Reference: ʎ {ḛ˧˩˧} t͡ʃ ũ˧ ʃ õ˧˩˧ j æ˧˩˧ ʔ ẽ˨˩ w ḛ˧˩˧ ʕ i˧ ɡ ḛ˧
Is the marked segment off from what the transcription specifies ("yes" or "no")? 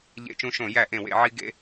no